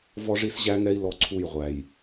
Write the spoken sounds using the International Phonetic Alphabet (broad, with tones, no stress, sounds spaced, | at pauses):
v ɔ˦ ʐ i˦ s ʑ æ˦ ŋ ɛ˦ i̯ l ɔ˦ ǀʰ u˦˨ j ʁʷ æ˨ j